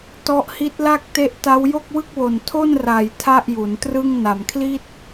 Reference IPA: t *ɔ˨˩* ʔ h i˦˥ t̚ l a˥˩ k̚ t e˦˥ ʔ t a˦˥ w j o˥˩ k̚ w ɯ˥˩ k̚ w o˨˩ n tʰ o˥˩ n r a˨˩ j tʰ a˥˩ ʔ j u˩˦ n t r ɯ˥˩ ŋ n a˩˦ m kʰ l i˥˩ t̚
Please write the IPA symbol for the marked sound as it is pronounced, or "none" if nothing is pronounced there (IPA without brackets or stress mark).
ɔ˦˥